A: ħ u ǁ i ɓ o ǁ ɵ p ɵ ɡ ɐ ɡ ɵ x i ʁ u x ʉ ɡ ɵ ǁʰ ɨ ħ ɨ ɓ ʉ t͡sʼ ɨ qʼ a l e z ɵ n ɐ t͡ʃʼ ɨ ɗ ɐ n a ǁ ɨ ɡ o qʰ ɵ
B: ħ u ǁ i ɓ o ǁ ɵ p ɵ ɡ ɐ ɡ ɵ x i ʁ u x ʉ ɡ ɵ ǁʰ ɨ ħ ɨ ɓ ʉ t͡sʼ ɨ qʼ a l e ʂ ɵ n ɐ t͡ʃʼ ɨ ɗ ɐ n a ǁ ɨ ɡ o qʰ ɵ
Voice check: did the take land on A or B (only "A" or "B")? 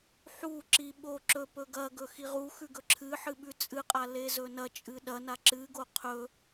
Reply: A